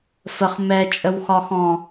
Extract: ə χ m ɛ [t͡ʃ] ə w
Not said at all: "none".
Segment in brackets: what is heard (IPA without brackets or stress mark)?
t͡ʃʼ